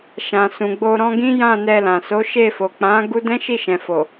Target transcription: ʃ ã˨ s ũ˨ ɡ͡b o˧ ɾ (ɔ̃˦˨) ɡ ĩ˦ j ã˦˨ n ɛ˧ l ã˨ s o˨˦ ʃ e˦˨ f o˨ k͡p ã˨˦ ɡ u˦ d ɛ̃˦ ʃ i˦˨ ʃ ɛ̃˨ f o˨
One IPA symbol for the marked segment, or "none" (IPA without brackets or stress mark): ɔ̃˦